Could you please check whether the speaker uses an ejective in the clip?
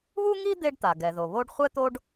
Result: no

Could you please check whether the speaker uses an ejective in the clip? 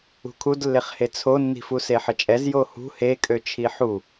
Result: yes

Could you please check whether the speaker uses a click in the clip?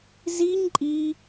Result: yes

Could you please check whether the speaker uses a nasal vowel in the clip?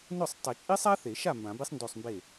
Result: yes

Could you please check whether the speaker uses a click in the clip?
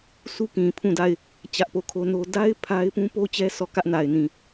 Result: no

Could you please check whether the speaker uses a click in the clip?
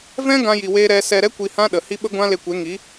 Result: no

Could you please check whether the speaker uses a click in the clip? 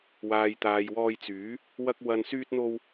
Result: no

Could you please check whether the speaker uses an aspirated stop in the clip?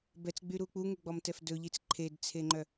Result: yes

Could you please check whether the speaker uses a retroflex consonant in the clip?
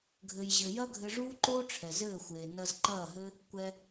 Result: yes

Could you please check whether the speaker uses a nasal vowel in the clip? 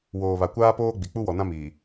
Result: yes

